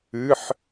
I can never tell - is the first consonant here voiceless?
yes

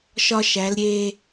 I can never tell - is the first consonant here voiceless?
yes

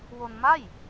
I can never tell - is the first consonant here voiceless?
no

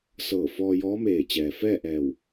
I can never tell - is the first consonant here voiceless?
yes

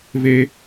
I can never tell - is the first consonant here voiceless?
no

